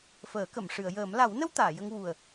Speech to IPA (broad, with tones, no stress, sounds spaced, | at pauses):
f əː˨˩˦ k ə˨˩˨ m ʂ ɨ˨˩˨ ə̯ j əː˨˩˦ m l a˨˩˦ w n ə˧ w t̪ aː˨˩˨ j ə˧ ŋ w u˨˩ ə̯